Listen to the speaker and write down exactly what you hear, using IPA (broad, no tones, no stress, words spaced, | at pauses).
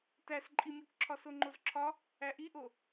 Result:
tæsǃʼimʲukǁʰɒ soŋ͡ǃozǁʰɒ | æʔiʔo